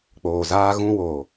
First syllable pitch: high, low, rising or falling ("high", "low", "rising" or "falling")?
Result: low